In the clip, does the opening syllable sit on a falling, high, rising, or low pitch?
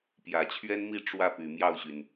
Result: low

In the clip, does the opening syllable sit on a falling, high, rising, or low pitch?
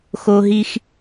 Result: high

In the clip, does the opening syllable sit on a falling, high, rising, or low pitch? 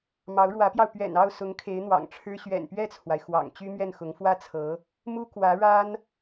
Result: rising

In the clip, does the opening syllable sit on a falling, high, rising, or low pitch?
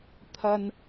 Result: low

